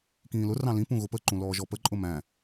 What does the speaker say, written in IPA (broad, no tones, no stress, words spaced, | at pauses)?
kĩːlʊ rɑ̃lĩ pũɣʊpə ǃũlɔːʒɔpə ǃʼʊmæ̃